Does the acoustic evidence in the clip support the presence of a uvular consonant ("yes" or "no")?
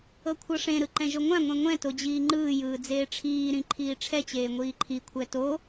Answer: no